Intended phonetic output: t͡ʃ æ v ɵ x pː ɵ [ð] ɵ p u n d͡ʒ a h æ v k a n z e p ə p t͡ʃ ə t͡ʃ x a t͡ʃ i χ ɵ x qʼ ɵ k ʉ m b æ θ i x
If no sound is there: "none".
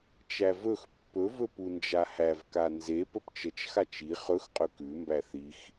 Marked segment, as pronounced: v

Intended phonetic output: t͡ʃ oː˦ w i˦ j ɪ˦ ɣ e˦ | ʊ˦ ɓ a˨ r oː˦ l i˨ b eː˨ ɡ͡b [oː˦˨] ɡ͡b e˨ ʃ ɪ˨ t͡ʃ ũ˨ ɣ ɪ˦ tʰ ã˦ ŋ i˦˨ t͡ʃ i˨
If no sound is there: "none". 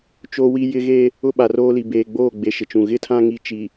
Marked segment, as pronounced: oː˦˨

